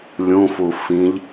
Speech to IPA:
lʲũfu fĩʎ

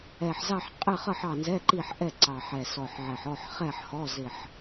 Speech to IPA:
ɛ˨˩ħzɑ˦˨ħ qʼɪ˦˨χʌ˦˨ħ ɑ˦˨nzɛ˧˥˧ǃi˦˨ħ ʔɛ˦˨ ǀɑ˨˩ħɛ˨˩sɔ˨˩ħʕɛ˨˩ħ ɔ˦˨ħχɛ˦˨ħ hɔ˧˥˧zɪ˦˨ħ

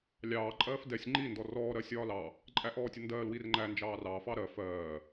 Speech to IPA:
lʲɑː ǃʼɜːfdɛsʲ ŋ͡ǃi ndɔrɔː ɾɜsʲɒːlɑ | ǃʼæʔɔːtʲəndɜːl wirŋ͡ǃæ nd͡ʒɑːrɑ fɑɾɜ fɜː

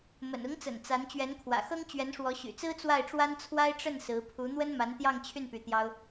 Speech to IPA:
mə̰˨˩nʊ˧˥ŋt͡sə̰˨˩n t͡sa˧˥n t͡ɕɥɛ˧˥nkʰwä̰˨˩xɤ˥ŋ t͡ɕɥɛ˧˥nʂwɔ˧˥ɕy̰˨˩t͡sɹ̩˥ t͡swa˥˩ɪ̯ʈ͡ʂwa˥nt͡sʰwa˥ɪ̯ ʈ͡ʂə˥˩n sɹ̩˧˥ pʰu˧˥n̪wə˥n ma˧˥nt̪jɑ˥˧ŋt͡ɕʰy˥˩n py˧˥t̪jɑ˥ʊ̯

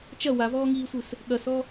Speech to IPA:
t͡ʃɐ wavɔːŋiːsʷɨs | ɠɐsɔ

